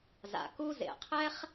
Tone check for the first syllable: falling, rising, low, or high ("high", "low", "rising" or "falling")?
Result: low